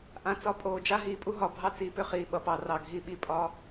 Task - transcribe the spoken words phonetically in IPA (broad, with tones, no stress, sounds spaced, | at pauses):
ʔ ã˨ t͡s ɒ˨ pʼ oː˨ d͡ʒ a˦ ɦ iː˨ pʼ u˦ ɦ ɒ˨ bʱ ɑ˦ t͡s iː˨ p ʏ˦ χ iː˨ ɓ ʌ˨ p ɑ˨ r ɑ˨ ɡʱ i˨ ɓ i˨ pʼ ɒ˦